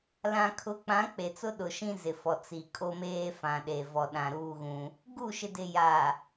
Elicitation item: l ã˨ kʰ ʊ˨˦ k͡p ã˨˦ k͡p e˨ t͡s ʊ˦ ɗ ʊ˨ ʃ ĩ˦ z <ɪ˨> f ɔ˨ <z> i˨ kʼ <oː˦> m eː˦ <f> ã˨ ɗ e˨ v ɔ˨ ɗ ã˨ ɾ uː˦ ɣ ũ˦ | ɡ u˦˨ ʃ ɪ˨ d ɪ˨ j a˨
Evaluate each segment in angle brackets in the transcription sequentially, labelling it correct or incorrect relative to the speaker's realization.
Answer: correct, incorrect: t͡s, incorrect: o˦, correct

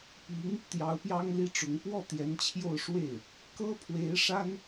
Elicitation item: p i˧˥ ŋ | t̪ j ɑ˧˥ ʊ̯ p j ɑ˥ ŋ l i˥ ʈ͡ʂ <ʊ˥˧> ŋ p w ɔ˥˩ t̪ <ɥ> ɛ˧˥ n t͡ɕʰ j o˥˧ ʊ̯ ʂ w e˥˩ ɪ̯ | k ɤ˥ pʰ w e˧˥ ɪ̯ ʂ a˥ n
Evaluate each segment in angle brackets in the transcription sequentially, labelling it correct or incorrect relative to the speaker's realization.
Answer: incorrect: ʊ˧˥, incorrect: j

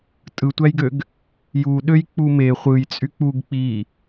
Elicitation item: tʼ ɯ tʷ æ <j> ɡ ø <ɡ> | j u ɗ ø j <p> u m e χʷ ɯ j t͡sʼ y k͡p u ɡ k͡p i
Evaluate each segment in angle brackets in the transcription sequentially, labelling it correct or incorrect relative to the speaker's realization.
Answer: correct, correct, incorrect: k͡p

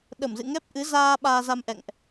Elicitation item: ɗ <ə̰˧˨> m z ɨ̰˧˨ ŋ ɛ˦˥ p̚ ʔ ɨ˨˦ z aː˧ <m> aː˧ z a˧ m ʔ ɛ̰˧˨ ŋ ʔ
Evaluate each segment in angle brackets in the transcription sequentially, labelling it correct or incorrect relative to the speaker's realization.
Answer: incorrect: ə˧˩, incorrect: ɓ

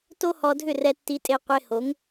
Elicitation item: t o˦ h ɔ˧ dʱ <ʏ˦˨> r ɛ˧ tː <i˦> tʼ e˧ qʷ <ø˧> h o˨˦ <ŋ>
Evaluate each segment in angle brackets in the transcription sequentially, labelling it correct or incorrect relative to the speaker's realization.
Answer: correct, incorrect: i˧, incorrect: e˧, correct

